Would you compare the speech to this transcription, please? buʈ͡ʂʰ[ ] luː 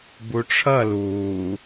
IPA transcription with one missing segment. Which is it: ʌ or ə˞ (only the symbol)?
ʌ